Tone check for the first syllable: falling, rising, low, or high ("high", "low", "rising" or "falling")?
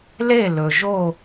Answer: falling